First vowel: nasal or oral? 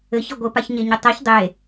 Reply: oral